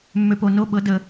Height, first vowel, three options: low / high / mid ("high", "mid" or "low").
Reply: mid